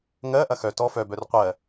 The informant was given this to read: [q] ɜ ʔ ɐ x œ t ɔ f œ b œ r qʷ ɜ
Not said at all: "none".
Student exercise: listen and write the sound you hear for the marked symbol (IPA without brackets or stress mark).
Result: ŋ